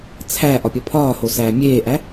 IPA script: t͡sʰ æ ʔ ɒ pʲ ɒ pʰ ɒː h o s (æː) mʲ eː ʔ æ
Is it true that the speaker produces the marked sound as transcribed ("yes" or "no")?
yes